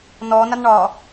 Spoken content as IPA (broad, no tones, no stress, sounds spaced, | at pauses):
n ɔ n a n ɳ ɒ